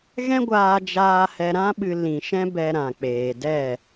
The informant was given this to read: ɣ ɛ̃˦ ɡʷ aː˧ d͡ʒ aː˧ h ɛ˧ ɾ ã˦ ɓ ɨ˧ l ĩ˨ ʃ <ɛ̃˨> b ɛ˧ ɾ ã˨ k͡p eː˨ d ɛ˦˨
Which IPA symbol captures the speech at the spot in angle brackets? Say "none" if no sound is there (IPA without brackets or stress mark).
ɛ̃˦